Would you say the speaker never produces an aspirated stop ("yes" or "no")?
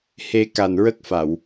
yes